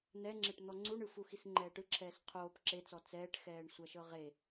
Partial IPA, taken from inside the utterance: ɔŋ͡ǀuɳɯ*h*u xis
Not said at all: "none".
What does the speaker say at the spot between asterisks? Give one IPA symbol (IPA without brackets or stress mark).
f